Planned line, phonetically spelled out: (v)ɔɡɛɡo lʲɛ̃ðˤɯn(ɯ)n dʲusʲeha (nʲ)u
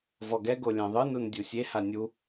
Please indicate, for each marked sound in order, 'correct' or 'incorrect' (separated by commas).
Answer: correct, incorrect, correct